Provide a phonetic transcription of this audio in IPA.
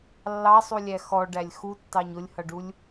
lː ɑ sˤ u lʲ æ x ɔ ɖ æ lʲ x u tː ɑ ɲ ʊ lʲ h ʌ ɖ u lʲ

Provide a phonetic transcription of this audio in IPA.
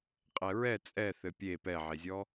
qʼ ɛ ɹ ɛ t͡sʼ ɛ θ ɘ pʲ e p ɛ ʕ e zʲ ɔ

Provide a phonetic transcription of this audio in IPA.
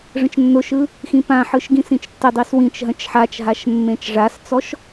ʐ ə̃ t͡ʃ nː ʊ ʃ ɯ | x ĩ p ã ħ ɯ ʃ ɡ ĩ s ĩ t͡ʃ tː ə dˤ i s w ĩ t͡ʃ ɦ ə̃ t͡ʃ ħ a t͡ʃ ɦ a ʃ mː ẽ t͡ʃ ʐ a s t͡s ɔ ʃ

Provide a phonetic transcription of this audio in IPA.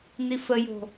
n i f ə j o̤

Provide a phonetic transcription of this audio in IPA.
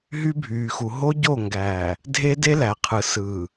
ɦ y˦ bʱ yː˨ x u˨ ɦ o˦ ɟ o˦˨ ŋ ɡ æː˨ | dʱ e˦ d e˦ l æ˨ qʰ ɯ˨ s ɯː˨

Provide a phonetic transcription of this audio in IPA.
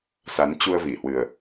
s a˨˦ n t͡ɕ u˧ ə̯ v i˧˩ h w ɨ˨˩ ə̯

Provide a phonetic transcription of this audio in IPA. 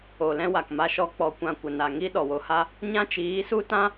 o˨ l ɛ̃˦ w a˨ k m a˧ ʃ ɔ˧ k͡p ɔ˧ kʷ ã˧ kʷ ə˨ n a˨ ŋ i˦ ɗ ɔ˨ w o˧ h a˦ | ɲ ã˦ t͡ʃ iː˨˦ s u˦ t ã˦

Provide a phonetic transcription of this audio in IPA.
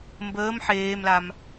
m b əː m ħ eː m l a m

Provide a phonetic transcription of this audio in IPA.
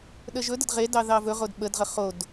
ɗ ə ʒ ɵ d ə d ʁ e d ɑ ð ɑ v ɵ ʁ o d ɓ ə d ʁ ə χ o d

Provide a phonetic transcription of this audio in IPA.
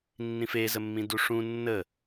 nː ĩ f e z ə mː ĩ d u ʂ ũ nː ə

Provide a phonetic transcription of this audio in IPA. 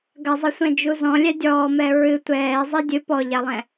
ɡ ɐ zˤ ɘ sʷ ɛ̃ d͡ʒ u z ɔ̃ lʲ ɛ dʲ ɔː m ɛ ɹ ɨ tʷ ɛː zˤ i dʲ ɨ p ɔ ʎ a lˠ ɛ̃

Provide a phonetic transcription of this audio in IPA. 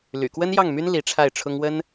l y̰˨˩ k w ə˥ n j ɑ˥˩ ŋ m y˥ n l i˧˥ ʈ͡ʂʰ a˥˩ ɪ̯ ʈ͡ʂʰ ʊ˥ ŋ w ə˥ n

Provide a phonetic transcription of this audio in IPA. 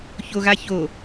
ç o ɣ a ç o

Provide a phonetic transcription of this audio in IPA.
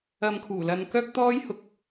ɐ˧ m kʰ uː˨˩ l ɐ˨ n k œː˥ k̚ t̪ ɔː˥ j h ʊ˥ k̚

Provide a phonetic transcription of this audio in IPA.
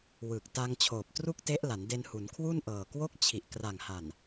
w ɯ˨˩ k̚ t a˧ ŋ t͡ɕʰ oː˨˩ p̚ t r u˥˩ k̚ t e˦˥ ʔ l a˩˦ n d e˧ n h u˩˦ n kʰ w u˥˩ n ʔ ɤː˨˩ k w o˦˥ k̚ t͡ɕʰ i˨˩ ʔ k r a˨˩ ŋ h a˨˩ n

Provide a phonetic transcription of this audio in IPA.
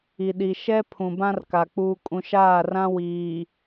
i˨ ɗ i˨ ʃ ɛ˦ pʰ ũ˨ b ã˦ r k a˨ k͡p uː˨ kʼ ũ˨ ʃ aː˦˨ r ã˦ w iː˨

